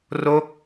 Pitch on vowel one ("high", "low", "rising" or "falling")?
falling